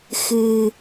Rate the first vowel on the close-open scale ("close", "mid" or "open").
close